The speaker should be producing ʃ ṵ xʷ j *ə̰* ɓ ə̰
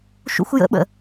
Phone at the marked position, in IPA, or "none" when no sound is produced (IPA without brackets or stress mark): ə̰